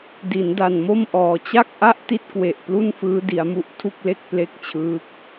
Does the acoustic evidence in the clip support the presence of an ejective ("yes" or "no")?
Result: no